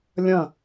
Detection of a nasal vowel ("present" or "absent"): present